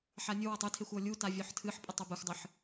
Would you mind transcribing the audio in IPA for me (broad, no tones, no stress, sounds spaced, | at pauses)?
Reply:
ħ a nʲ ʊ w a tˤ ɨ tʰ e xʷ ɔ lʲ u t a vʲ ɔ ħ tʰ ɨ ħ pʼ ə tˤ o b ə xʷ dˤ ɨ ħ